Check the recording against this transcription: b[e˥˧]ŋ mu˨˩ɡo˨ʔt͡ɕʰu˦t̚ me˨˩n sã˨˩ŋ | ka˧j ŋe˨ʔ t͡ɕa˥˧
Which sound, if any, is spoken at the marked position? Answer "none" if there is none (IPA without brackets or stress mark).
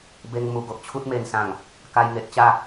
e˧